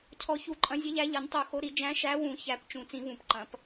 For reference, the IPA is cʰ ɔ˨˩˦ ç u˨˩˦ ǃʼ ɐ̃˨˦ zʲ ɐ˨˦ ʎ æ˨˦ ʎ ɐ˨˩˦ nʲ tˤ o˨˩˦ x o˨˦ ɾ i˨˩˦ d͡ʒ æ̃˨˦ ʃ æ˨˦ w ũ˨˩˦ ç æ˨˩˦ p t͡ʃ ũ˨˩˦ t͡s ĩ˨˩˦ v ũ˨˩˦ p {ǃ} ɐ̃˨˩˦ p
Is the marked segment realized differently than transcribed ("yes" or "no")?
no